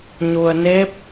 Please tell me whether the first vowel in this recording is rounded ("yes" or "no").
yes